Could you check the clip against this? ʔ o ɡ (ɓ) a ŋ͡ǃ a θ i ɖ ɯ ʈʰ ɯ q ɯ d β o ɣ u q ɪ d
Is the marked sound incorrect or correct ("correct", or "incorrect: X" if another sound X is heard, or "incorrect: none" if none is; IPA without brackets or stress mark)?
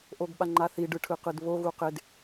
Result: correct